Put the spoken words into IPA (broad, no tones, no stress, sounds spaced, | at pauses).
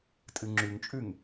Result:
tʼ ɨ ŋ͡ǁ ʉ ŋ t͡ʃʼ ʉ ŋ